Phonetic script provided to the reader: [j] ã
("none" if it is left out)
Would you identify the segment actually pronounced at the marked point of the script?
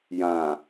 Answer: j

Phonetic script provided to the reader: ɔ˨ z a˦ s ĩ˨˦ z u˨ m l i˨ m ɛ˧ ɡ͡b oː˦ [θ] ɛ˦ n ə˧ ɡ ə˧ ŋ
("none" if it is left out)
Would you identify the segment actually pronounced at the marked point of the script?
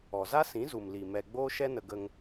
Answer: ʃ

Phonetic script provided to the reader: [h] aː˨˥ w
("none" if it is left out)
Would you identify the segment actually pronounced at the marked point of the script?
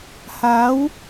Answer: h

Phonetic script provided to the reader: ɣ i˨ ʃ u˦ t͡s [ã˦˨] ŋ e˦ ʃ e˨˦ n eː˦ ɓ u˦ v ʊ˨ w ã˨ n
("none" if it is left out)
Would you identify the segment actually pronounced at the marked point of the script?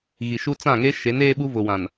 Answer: ã˦˨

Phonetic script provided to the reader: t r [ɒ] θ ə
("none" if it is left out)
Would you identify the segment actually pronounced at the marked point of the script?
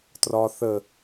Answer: ɒ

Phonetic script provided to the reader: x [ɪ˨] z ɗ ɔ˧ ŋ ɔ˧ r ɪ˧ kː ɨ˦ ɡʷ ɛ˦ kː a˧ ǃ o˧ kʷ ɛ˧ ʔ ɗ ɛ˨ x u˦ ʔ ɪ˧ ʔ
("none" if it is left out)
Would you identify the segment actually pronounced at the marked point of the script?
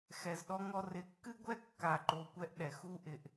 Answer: ɛ˨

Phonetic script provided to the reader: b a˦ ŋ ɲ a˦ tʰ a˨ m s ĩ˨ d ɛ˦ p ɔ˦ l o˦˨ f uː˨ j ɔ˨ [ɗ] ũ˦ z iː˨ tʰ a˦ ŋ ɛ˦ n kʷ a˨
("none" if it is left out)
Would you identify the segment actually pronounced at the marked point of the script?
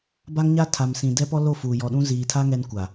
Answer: ɗ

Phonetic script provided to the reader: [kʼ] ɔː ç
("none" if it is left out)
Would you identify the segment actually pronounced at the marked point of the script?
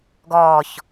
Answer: ɡ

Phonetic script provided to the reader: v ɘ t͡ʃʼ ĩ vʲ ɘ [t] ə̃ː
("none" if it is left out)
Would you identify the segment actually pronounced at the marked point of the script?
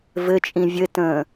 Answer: t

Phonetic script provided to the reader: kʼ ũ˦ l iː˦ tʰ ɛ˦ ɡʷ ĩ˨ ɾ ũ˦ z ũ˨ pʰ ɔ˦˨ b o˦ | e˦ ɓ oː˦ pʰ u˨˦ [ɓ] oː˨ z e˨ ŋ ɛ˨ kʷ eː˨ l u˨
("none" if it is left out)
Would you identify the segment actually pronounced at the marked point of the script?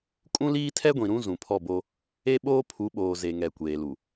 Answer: ɓ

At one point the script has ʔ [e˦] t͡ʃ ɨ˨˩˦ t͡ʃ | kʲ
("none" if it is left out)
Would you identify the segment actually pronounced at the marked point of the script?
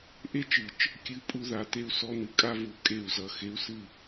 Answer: e˦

